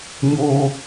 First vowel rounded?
yes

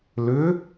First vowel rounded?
yes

